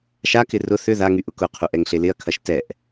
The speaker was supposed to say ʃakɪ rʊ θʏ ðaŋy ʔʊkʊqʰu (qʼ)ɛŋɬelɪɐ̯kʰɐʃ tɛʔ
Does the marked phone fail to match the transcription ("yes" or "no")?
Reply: yes